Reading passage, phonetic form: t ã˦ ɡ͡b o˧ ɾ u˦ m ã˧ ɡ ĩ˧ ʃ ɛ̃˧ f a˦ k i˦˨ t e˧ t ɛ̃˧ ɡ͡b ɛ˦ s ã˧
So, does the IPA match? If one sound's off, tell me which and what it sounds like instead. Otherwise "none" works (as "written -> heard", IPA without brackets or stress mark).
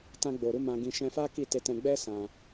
none